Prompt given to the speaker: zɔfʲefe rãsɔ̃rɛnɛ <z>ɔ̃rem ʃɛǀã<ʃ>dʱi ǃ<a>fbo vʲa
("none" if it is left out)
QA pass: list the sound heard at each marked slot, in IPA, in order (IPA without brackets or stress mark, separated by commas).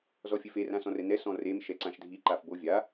s, ʃ, a